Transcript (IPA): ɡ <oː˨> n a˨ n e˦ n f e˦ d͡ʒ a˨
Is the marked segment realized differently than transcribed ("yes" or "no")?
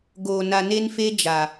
no